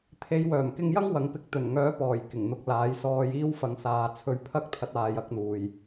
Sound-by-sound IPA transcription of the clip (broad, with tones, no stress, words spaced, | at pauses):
t̪ʰe˨˧jwœː˨˩mkɪ˧ŋjɐ˥ŋ wɐ˨˥ŋpɪ˧k̚ t̪ɵ˨˩nŋœː˨˥pɔː˨˩j kɪ˨˩ŋn̪ʊ˨k̚laː˨˥j sɔː˧j iː˥wfɐ˨˧ŋ saː˨˧t͡sʰɵ˧ɥ pʰɐ˥k̚t̪ʰɐ˨˥t̚ aː˨˧jɐ˨˥k̚n̪uː˨j